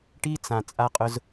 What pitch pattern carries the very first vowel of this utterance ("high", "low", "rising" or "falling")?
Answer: high